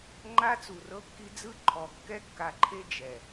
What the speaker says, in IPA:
ŋ͡ǃa˦t͡su˨rɤ˦kːi˦ d͡zɯ˦ ǃʰɔ˨ kːɛ˦kːa˨ǃʰe˦ d͡ʒɛ˨

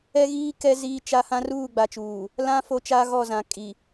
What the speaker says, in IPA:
ɛ˦ɣiː˦ kɛ˦ ziː˦t͡ʃa˦ hã˦ruː˦˨ɡ͡ba˨t͡ʃuː˨ | lã˦ fo˦ t͡ʃa˦ɣɔ˦˨zã˨ kʼi˨

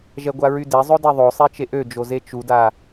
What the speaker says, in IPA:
ʒɛɡʷaɹyde zˤɵdɛðˤo sˤet͡ʃeʔød͡ʒo zet͡ʃuda

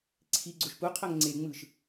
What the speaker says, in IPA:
ǀʰiɡ͡ǀoʃ puqʰɤŋ ŋ͡ǀeŋ͡mɯʃ

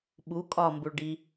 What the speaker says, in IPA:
ɓu kʼɒ mbuɭɖi

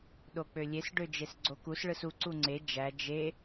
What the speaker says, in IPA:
ɗok͡pølʲes ɖød͡ʒesɡ͡ǀokus ɭɯsu ǀuŋ͡ǀe d͡ʒæ d͡ʒe

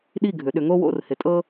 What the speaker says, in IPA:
ɗi˥˩ɡʱʏ˩˧ ɗʏ˩˧ŋo˥wo̰˥˩r hɪ˩˧tʼɤ˥

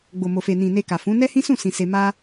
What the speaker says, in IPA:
ɡ͡bo˨mo˨ fe˨nĩ˨ ne˧ka˨fũ˨˦ nɛ˦hĩ˦sũ˦˨ sĩ˨ se˧ ma˦

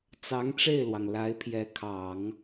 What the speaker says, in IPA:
t͡sɑ˧˥ŋʈ͡ʂe˥˩ɪ̯lwɑ˩ŋ la˧˥ɪ̯pʰjɛ˧˥kʰɑ˨˩˦ŋ

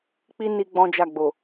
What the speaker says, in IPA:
k͡pi˦ ni˦ɡ͡bɔ̃˦d͡ʒa˦˨ɡ͡bo˨

